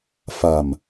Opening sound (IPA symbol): f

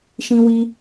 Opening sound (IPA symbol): ʃ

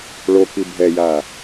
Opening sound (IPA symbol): ɭ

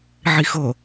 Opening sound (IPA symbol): ʕ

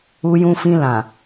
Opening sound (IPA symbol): u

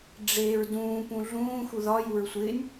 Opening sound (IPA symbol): ɖ͡ʐ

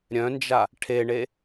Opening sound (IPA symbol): ɾʲ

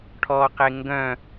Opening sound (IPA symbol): ʈʰ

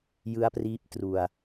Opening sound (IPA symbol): j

